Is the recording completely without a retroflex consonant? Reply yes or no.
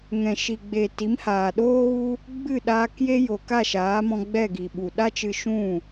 yes